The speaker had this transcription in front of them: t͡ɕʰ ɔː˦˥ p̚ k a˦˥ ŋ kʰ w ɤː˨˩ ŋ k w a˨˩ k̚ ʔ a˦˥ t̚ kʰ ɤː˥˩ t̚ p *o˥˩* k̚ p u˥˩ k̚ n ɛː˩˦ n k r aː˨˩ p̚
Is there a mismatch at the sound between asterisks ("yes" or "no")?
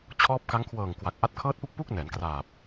yes